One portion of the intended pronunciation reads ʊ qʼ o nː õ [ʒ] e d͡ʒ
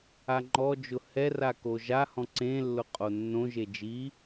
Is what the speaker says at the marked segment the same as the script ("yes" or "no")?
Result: yes